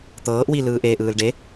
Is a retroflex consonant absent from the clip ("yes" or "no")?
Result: no